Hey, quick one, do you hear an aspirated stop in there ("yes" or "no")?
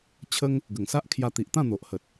yes